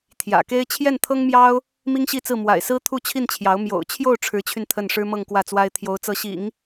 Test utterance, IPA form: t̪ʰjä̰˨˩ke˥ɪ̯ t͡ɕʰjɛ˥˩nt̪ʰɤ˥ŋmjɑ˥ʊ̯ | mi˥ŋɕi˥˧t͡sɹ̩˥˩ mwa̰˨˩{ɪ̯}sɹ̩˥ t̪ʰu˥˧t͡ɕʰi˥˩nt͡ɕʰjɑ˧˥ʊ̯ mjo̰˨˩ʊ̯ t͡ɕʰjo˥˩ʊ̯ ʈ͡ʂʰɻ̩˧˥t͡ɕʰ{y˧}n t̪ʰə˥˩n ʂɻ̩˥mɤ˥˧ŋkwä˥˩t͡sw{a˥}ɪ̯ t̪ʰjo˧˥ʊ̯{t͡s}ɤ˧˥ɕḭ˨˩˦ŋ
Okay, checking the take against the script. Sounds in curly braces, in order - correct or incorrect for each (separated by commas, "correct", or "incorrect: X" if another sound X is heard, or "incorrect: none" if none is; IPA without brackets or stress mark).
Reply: correct, correct, correct, correct